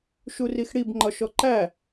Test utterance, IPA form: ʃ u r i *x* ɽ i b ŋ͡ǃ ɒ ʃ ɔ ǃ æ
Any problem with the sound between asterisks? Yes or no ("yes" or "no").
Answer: no